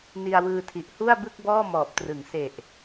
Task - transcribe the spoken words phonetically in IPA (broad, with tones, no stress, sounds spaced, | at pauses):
n i˧ a̯ w ɯː˧ tʰ i˨˩ ʔ h u˥˩ a̯ b ɯ˥˩ k̚ b ɔː˥˩ m ɔː˨˩ p̚ t r ɯ˩˦ ŋ s e˨˩ ʔ